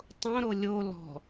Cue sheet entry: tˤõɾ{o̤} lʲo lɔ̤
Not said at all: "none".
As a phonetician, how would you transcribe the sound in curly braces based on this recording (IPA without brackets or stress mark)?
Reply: o